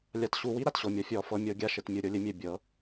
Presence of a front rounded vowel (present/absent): absent